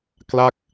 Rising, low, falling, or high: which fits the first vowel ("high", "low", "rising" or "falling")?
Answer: falling